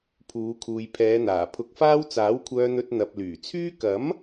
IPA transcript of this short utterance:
pʰ uː˨˧ kʰ uː˨ j pʰ ɛː˨˧ n̪ aː˨˩ pʰ ʊ˧ k̚ f aː˥ w t͡s aː˨˥ w kʷʰ œː˧ n̪ ɵ˧ t̚ n̪ ɐ˨ p̚ l yː˨˩ t͡sʰ yː˥ k ɐ˨˥ m

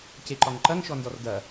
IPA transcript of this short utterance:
c e ǃ ɒ ŋ ǃ ɐ ŋ ʃ ɔ n d ɔ r d ɐ

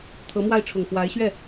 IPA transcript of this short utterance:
t̪ʰ ɤ˧˥ m w a˥˩ ɪ̯ ʈ͡ʂʰ ʊ˨˩ ŋ f w a˧˥ ɪ̯ ɕ ɥ ɛ˥˩

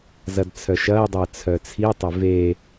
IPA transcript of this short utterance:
z ɐ d t͡sʰ œ ʃ ɐː dˤ əː t͡sʰ œ t͡sʰ i tˤ ʏ v e

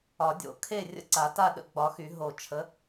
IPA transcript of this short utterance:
ɒ˨˩˦ dʲ o̰˨˩˦ kʰ e˥˨ rʲ ə̰˥˨ ǀ a˨˩˦ t a˥˨ ɗ ə̰˥˨ ɡ͡b ɒ˨˦ x y˨˩˦ ɦ o˨˩˦ t͡ʃʰ ə˨˦

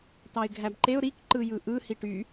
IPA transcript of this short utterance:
t ɑ ɪ̯ ɡʱ æ b ǃ e ʊ̯ ɾ i k ǃ ɯ j ɯ ʔ ɯ h i ʈ y

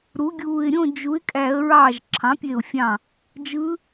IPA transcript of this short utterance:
ɾ u˩˥ ɡʲ uː˧˩ ɪ̯ ɾʲ õ˥˨ d͡ʒ u˩˥ ɪ̯ kʼ æ˧˩˧ ə̯ ɹ ɑː˧˩ ʒ ǁʰ ɑ̃˩˥ pʲ e˧˩ ʊ̯ fʲ ɑ̃˧˩ | d͡ʒ ɯ˧˥

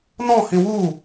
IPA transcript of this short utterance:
n ɔ̃ h ĩ w u

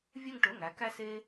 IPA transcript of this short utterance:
vʲ œ˦˨ ŋ ʈ ɵ˩˧˩ ŋ æ˩˧ k æ˦ s e˦

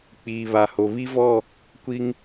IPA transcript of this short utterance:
k͡p iː˨ β a˨ h o˨ β i˦ v ɔ˦˨ | kʷ i˦ ŋ

